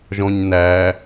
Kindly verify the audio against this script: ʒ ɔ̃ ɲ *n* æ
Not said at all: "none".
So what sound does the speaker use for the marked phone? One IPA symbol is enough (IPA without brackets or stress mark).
n